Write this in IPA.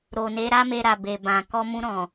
ɾo˨ne˨˦ ɾa˦me˧ɾa˨ be˨bã˨ kɔ˧mũ˧ ɾɔ̃˨

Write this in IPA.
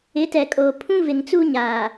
ɪ˨˦tɛ˨kʼoː˨ pʰũ˦vɪ˨ŋt͡suː˦ ɲaː˨

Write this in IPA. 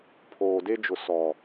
pʰoː˨de˦d͡ʒʊ˨ sɔ˨

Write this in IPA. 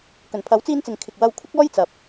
kɵ˨˩npʰɐ˨˥wt͡siː˧nt͡sɪ˨ŋ kʰɪ˨k̚ wɐ˧w kʷʰɪ˥k̚ɔː˥jt͡sɐ˨˥p̚

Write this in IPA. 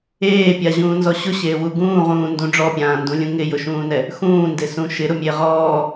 eːpʲaʑũːnzɔ ɕʊɕeːwu ɡũːʁũːndũ ɖ͡ʐɔpʲãːndũlʲũ ŋɪjʊʃũːnɛ | xũːndɪsũ ʃɪɾʊmʲe ʁɔː

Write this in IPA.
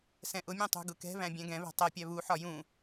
sɛ̃ʔʊmʲũ tˤṳɡʊkɛ̤βæ̃ bʲɛ̃ɡɛ̃βɛ̤ tˤɜpʲæ βuħɒ jũ

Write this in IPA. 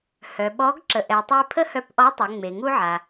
hœ˩ɓɔ˧˥ɡ ǁə˩ʔɛ˩tˤe˧ pʰə˥hœ˧pʔɔ˧˥ tˤɛ˩˧ŋ͡me˩ŋu˥ʕa˩

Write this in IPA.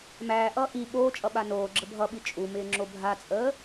mæːʔʌː ʔi ɓoːt͡ʃʼʌɓa noːɡ͡ǁə bʱʌɓi t͡ʃʼumɪːŋ͡ǁo bʱat͡sʼəː

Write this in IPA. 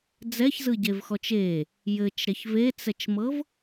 d͡zɛçzɯɟevxɔt͡ʃ e | jɘt͡ʃɾɛç vet͡sɛt͡ʃmɤv

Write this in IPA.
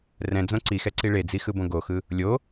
rɛ̃d͡zõ ǀixɛǀi ɭed͡zixɯbõ ɡoxɯ | lʲo

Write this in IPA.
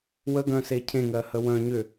wəɡœ̃se cʰẽŋɜhə wœ̃ ɲʏ

